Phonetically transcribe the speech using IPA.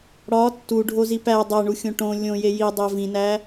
ɽɒ tːuɖʱozi pæ dˤæɳuxʲõ ʈõ lʲõje jidˤæ vĩnæ

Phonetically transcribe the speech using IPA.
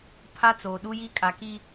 pʰa˦t͡soː˨ ɗu˦ji˦ kʼa˨ki˦

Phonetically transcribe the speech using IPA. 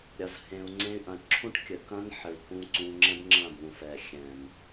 ɾʲɐ˧zhẽ˧u̯ŋ͡ǀẽ˦y̯ ʔɐ̃˨ʈǁʰũ˦ʈkʲɘ˨ kɐ̃˦nħɘ˨i̯kũ˧ ǀũ˧ŋ͡ǁɛ̃˦bŋ͡ǁɐ̃˦˨bũ˨ fɛ˨xʲɛ̃˨m

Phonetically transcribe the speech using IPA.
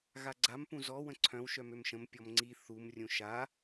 ɣaɡ͡ǀam pũzɔ wə̃ǀʰœ̃w ʃœmømʃə̃m pʲɔmŋ͡ǀi θum rʲũʃa

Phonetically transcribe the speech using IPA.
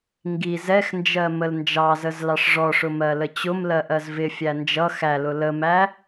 ŋɡi zɛxnd͡ʒɜ məlnd͡ʒɑzəz lɑʂʐɔʂʊ mɜlət͡ɕʊmlɜ ʔɜzvɪfʲæ nd͡ʒʌ xælʊ ləmæ

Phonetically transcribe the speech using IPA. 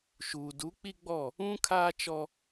ʃuː˨ du˨˦k͡pi˦ɡ͡bɔ˦˨ | ũ˦ kʰaː˦t͡ʃɔ˦

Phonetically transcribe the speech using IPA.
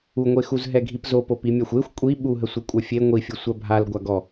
uŋʷexuz ɦɛɡʱipzo popimʲaxʷexʷ kʷʼi ɓuɦə sʷɛkʷʼœfʲe ŋʷifʲu sʷabʱal ɡʷaɡɔ

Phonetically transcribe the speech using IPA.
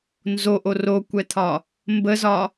nzoʔo rokʷɛt̪ʰɒ | mbəzɒ

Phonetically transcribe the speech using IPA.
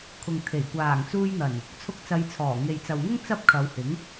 kʰʊ˨ŋt̪ʰe˨˩j kʷaː˨˩ŋt͡suː˧jn̪ɐ˨˩n | t͡sʰʊ˧k̚t͡sɐ˨˧jt͡sʰɔː˨˩ ŋe˨jt͡sɐ˨wŋʊ˥ŋ t͡sɐ˥p̚kʰɐ˨˧whɪ˨˥ŋ

